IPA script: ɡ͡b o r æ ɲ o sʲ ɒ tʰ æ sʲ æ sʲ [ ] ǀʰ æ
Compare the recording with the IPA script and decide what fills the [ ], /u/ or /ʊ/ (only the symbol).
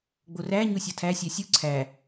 u